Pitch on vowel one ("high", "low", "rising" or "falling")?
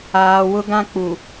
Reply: low